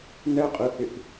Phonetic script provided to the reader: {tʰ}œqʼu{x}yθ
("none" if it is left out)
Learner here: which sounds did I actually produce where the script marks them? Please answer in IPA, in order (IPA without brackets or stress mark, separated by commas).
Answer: n, h